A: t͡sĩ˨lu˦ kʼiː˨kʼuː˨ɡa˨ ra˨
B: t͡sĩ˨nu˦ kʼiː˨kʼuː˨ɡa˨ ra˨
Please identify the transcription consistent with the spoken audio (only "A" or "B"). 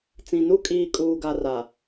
B